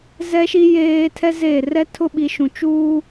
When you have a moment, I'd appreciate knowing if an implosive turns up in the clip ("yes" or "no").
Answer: yes